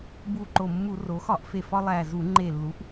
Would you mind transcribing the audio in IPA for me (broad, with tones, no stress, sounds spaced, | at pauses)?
b u˨˩ ǃ o˨˩ mː u˧˩˧ r o˩˧ x ɒ˧˩˧ ʔ f e˨˩ f ɒ˧ lˠ æ˨˩ z u˧˩˧ ŋ͡ǃ e˨˩ lː u˩˥ ʔ